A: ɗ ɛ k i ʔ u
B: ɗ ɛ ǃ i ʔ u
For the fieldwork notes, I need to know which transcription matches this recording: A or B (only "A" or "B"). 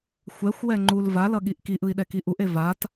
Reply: A